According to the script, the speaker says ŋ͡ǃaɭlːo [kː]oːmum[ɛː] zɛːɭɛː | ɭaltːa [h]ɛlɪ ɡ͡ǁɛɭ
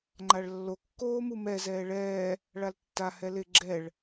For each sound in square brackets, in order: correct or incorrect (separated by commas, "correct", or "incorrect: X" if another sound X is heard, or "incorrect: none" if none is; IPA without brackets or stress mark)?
correct, incorrect: ɛ, correct